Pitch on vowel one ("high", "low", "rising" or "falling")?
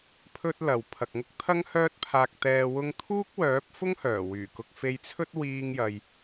high